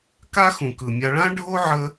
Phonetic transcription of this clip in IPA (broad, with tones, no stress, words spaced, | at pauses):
ka˦xũ˩kɯ˩ mʲa˨ɭã˦ ɖʱo˥ ʕə˦